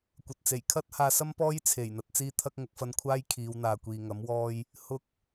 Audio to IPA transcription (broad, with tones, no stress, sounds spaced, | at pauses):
kʷ ɐ˨ t̚ t͡s e˨˩ j kʰ ɐ˥ t̚ h aː˧ s ɐ˥ m p ɔː˥ j t͡sʰ e˨˩ j n̪ ɐ˧ t̚ t͡s iː˥ t̪ʰ ɐ˥ k̚ ŋ ʊ˨˥ k̚ f ɐ˧ n kʷʰ aː˥ j kʰ iː˨˧ w n̪ aː˨ kʷ iː˨ ŋ ɐ˨˥ m w ɔː˧ j | h ʊ˧ k̚